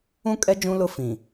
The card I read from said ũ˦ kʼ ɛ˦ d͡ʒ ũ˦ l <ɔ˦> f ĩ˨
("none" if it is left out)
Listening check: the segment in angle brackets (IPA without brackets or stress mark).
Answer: ʊ˦